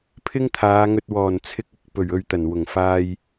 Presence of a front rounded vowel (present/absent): absent